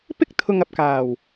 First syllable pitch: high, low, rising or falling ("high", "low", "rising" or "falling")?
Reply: high